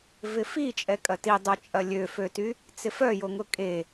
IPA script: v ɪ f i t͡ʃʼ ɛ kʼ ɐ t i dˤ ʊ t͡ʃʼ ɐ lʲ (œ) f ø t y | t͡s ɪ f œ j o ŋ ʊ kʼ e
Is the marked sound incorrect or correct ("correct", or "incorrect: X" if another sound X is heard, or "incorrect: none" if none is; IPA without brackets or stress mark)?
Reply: incorrect: ø